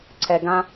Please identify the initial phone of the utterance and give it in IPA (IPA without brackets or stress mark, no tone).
ǀʰ